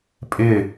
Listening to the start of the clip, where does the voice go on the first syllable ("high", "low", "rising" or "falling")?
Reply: falling